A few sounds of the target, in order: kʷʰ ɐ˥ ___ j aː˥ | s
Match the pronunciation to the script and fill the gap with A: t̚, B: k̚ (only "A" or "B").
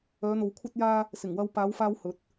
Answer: A